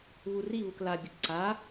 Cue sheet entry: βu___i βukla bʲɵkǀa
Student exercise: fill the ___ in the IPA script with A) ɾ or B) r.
B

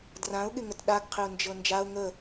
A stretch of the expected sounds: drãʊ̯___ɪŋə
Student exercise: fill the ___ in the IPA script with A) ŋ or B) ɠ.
B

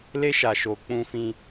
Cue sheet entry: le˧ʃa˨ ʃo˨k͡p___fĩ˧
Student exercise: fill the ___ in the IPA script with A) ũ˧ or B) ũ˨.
A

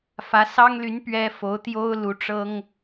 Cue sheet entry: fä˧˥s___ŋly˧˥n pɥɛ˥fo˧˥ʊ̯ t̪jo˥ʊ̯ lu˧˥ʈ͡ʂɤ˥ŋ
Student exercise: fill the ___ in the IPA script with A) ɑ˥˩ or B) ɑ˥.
B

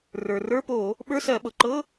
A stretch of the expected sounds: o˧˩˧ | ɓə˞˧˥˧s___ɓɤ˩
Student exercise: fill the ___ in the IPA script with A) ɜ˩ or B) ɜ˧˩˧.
B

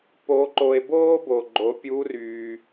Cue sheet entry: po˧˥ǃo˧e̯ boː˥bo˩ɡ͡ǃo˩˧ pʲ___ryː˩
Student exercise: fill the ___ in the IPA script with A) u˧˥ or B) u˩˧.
A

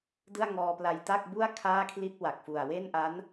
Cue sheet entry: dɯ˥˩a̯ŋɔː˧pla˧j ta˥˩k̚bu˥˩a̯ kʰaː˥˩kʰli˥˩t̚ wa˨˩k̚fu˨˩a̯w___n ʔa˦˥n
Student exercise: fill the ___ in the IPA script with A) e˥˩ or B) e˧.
A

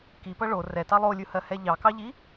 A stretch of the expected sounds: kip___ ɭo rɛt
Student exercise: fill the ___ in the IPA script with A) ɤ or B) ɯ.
A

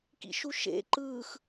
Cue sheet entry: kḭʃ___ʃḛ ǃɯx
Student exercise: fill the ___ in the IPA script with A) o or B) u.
B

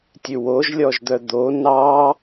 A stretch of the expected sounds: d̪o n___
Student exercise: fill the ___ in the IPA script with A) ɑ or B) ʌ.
A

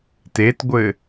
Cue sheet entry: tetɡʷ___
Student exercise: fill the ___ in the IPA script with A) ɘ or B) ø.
A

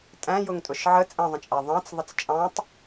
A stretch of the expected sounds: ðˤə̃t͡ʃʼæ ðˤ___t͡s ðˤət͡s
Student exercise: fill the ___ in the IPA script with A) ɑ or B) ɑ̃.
B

